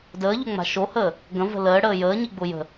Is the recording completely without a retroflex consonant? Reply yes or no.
no